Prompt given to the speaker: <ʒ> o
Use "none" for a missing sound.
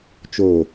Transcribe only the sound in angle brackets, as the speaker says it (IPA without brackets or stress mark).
t͡ʃ